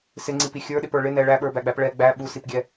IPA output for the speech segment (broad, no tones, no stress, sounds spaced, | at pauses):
s ɪ ŋ͡ǀ i p i xʲ ə˞ ɗ ɪ p ə˞ ɭ ɪ n ɛ ɭ æ ɓ ə˞ b æ ɡ͡b æ p ɭ ɛ ɡ͡b æ ɓ u s i p ɡʲ ɛ